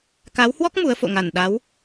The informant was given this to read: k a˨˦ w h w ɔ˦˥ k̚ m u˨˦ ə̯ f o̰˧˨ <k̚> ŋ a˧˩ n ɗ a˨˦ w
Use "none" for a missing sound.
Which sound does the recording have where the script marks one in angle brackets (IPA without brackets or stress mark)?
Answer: none